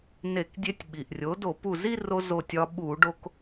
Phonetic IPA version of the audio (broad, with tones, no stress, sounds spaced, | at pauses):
n e˧˩˧ k dʲ e˧ tʲ ɓ i˩ ʔ rʲ o˩˥ d o˧˩˧ p u˧˩ z i˥˧ r o˧ z o˧˩ tʲ ɒ˧ ɓ u˧˩˧ ɖ o˧ k